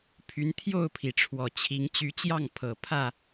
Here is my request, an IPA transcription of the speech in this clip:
pʰ y˨˦ n t̪ʰ j o˥˨ ʊ̯ pʰ i˩ ʈ͡ʂʰ w ɔ˨˩ t͡ɕʰ i˨˦ ŋ t͡ɕ y˨˦ t͡ɕ j ɑ˥˨ ŋ pʰ ɤ˨˩ pʰ ä˥˨

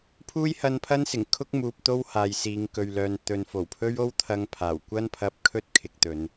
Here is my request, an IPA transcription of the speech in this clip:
pʰ uː˥ j h ɐ˧ n pʰ ɐ˥ n s ɪ˨˩ ŋ kʰ ʊ˥ k̚ m uː˨ p̚ t̪ o˥ w h aː˨ j s iː˨˧ ŋ k ɵ˨ ɥ l œː˨ n t̪ ɵ˨ n f o˨˩ w pʰ ɵ˥ ɥ o˥ w t̪ʰ ɐ˧ ŋ pʰ aː˨˩ w kʷ ɐ˥ n pʰ ɐ˧ p̚ kʰ ɵ˥ t̚ kʰ ɪ˨ k̚ t̪ ɵ˨˧ n

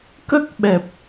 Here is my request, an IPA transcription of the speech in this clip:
k ə˦˥ k̚ ɓ ɛ˨˩ p̚

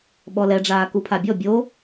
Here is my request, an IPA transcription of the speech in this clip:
ɓ ɔ l ɛ ɖ͡ʐ aː k u pʰ a bʲ ɔ bʲ o

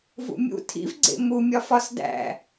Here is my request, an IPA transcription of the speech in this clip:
v ṵ mʲ ṵ tʰ ḭ v ɡ͡ǀ ḛ m u mʲ ɒ f ɒ s d æ̰

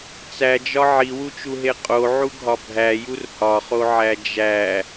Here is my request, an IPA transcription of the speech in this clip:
t͡s æ d͡ʒ ɒ ʕ i w u t͡ʃ u ɦ e qʼ o ʕ u ɡʱ ɒ bʱ æ j u r h ɒ χ o ʕ æ d͡ʒ æ

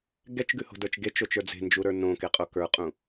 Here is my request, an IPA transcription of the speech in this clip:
ɡ ɛ t͡ʃ ɡ ʉ h o̤ d ə˞ t͡ʃ ɡ e t͡ʃ o t͡ʃ ə˞ d͡z e̤ n d͡ʒ u ɾ ə˞ n õ k e qʼ o k ə˞ qʼ ũ

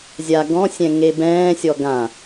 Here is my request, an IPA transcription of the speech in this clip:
zʲ a ɡ ɔ̃ sʲ ɛ̃ ŋ e b ɛ̃ː sʲ ɔ ɡ ã

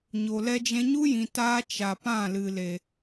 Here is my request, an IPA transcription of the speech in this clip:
ɲ o˨ l ɛ˦ d͡ʒ ɛ̃˧ ɲ u˦ j ĩ˨ t aː˧ t͡ʃ a˨ p ã˦˨ l ɨ˨ l e˨

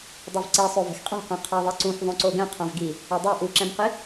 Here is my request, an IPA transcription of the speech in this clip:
dˤ ɛ v ǀ i sˤ o v ɛ̤ x qʼ ɛ̤ q ɛ̃ qʰ a ðˤ i ǀ ũ x ðˤ õ ǀ o ɡ ɛ̃ qʰ ã v ɡ i | ɛ dˤ a ʔ u ǁ ɛ̃ m q i

